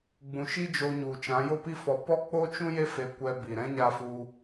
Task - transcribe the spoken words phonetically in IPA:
ɡ͡bũ˨ʃi˦d͡ʒo˧ɲu˨ t͡ʃã˨˦jo˦pi˦fɔ˧ pɔ˦k͡po˦ t͡ʃũ˦je˦ fe˧kʷɛ˧bi˨ɾɛ̃˦ ɲa˦fu˦

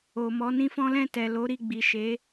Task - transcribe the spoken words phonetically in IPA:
o˨mɔ˨˦nĩ˦fɔ̃˦ lɛ̃˦˨ tɛ˨lo˨˦ ɾi˦˨ɡ͡bi˨ʃe˨˦

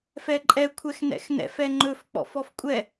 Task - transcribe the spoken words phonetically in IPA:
fɛǃʼɛ kʷʰɛxnɛ̰xnɛ̰f ɛŋ͡ǃɵf k͡pɔ̰fɔfkʷʼɛ

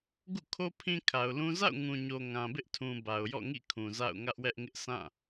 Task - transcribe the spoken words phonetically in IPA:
ɡṵ˦˨kʰo˦ pʰĩ˦kʰa˨ʊ̯lũ˦ za̰˦˨ʊ̯ŋũ˨ɲo˨ ŋã˨bɪ˦ʔtʰũ˨ ba˨ʊ̯jɔ̰˦˨ŋḭ˦˨kʰũ˨ za̰˦˨ʊ̯ŋä˦ʔwɛ˦ʔŋɪ˦ʔ sʰã˦˨

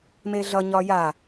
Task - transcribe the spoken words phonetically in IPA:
meɮʌ ɲɒja

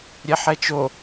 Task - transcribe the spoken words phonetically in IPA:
ɾʲɛħɛt͡ʃo

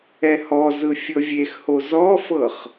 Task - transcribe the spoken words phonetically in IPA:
ɛhɔzɯ fʲɤvʲexho zɔfɤχ

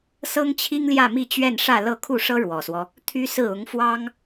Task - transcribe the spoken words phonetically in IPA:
sɤ˥ŋt͡ɕʰi˥ŋljä˥˧ mi˥˧t͡ɕɥɛ˥˧nʂä˥˧ lɤ˥˧ kʰu˥˩ʂɤ˥ ɻwɔ˨˩swɔ˦ | t̪ʰy˥sɹ̩˥˩ ʊ˧˥ŋfwɑ˥ŋ

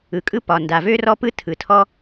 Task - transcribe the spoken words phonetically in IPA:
ɯ˨kʼɯ˦pɒ˨ nda˨vø˦rɔ˦pɯ˦ tʰɯ˨tʰɔ˦

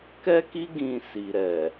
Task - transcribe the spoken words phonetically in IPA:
kɛ˦ki˦ ɡĩ˧si˨ɾɛ˨

